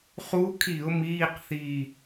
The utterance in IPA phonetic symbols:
χ u˧˥ kʰ i˧˩˧ ʊ̯ m iː˧˥˧ q θ i˧˩

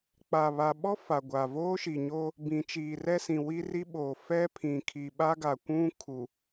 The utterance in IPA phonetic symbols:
k͡p a˨ β a˨ ɓ ɔ˦ f a˨ ɡʷ a˨ v oː˦ ʃ i˨ ɲ oː˦ | b ĩ˨ t͡ʃ iː˨ r ɛ˦ s ĩ˨ w i˦ r i˦ ɓ oː˨ f ɛ˦ pʰ ĩ˨ kʰ i˨ ɓ a˦ ɡ a˨ kʷ ũ˦ kʰ u˨

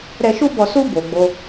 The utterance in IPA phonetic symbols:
ɾ ɛ˧ ʃ u˦ b ɔ˧ s u˦ b o˧ ɡ͡b o˦

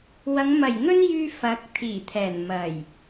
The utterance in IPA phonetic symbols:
w ɐ˨˧ ŋ m ɐ˨˩ j ŋ ɵ˥ n j yː˧ f ɐ˨˥ k̚ t̪ʰ iː˨˩ t̪ʰ ɛː˨˩ n m ɐ˨˩ j

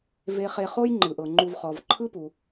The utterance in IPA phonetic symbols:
v e˨ χ e˨ χ o˥ j ŋ͡ǃ ɯ˩ ʔ ɤ˩ ŋ͡ǃ u˨ v χ ɔ˩ v ǃʰ ɯ˥ p u˩

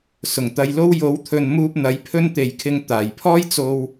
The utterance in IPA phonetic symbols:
s ʊ˨˩ ŋ t̪ ɐ˧ j l o˥ w j o˨˥ w t̪ʰ ɵ˨ n m uː˧ p̚ n̪ ɐ˨˥ j pʰ ɵ˥ n t̪ e˨ j kʰ ɪ˧ ŋ t̪ aː˨˩ j pʰ ɔː˥ j t͡s o˧ w

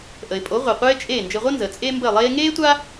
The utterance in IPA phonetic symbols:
ʔ ə˩ ɪ̯ pʼ o˩˥ ʁʷ i˩ qʷ eː˥ t͡ʃʼ eː˥˩ n d͡ʒ ɘ˧ ʁʷ əː˥ n z əː˩ t͡sʼ eː˥ m b ə˥˩ ɪ̯ lˠ eː˥ ŋ eː˥ tʷ a˥

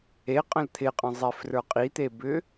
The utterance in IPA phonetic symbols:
e qʼ ə̃ l t̪ʰ ɪ qʼ ə̃ zˤ e f r ə˞ qʼ i t̪ e b ʏ

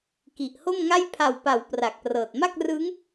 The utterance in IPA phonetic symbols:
k i˨˩ ʔ h o˥˩ m ŋ a˥˩ j pʰ a˨˩ w p a˩˦ w p r a˨˩ k̚ p r ɤː˨˩ t̚ m a˥˩ k̚ r ɯː˦˥ ŋ

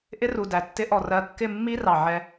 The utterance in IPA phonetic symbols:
ʔ ɪ˦ r u˨ d æ˨ tː ɪ˦ ʔ ɔ˦˨ r ɜ˦˨ kː ɪ˦˨ mː i˦ r ɑ˨ ʕ ɛ˦

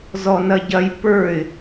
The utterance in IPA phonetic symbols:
z ɔ n ɐ ɟ ɐ j p ə˞ ɪ̯

